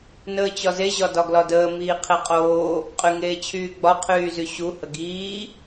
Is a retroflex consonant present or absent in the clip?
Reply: absent